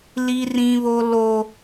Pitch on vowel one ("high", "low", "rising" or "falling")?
high